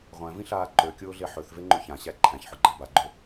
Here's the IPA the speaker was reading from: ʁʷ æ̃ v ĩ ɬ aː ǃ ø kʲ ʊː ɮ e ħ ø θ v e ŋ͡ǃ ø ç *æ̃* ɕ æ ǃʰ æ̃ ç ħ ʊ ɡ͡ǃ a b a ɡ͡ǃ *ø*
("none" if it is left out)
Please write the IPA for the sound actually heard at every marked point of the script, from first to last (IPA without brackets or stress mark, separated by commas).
ã, ø